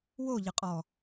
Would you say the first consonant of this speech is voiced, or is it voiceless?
voiced